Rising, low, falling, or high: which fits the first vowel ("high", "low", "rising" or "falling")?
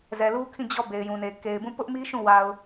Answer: low